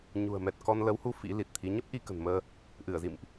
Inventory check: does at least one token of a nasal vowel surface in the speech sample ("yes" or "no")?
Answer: no